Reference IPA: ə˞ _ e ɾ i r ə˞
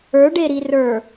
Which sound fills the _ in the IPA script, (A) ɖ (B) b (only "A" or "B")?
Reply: A